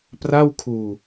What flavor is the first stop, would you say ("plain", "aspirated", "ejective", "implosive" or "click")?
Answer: plain